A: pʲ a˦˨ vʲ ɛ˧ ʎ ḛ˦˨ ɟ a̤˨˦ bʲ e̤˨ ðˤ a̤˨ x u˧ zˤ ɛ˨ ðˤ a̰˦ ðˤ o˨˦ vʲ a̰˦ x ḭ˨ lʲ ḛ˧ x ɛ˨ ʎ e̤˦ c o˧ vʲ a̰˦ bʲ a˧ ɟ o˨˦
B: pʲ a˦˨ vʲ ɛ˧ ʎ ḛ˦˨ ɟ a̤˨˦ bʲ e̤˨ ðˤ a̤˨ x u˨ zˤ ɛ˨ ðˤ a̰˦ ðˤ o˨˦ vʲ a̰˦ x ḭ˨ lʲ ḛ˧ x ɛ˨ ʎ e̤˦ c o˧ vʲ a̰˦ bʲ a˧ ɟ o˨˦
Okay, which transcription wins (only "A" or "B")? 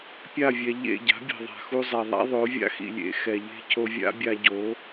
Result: A